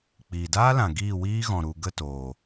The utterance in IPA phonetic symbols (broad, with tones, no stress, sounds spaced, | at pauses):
k͡p iː˨ d aː˦ l ã˨ ɡ iː˦˨ w iː˦ ɣ ɔ̃˨ ɾ u˨ ɡ ə˦˨ t oː˨